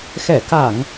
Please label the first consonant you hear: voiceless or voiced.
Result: voiceless